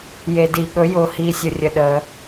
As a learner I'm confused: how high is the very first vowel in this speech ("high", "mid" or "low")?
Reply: mid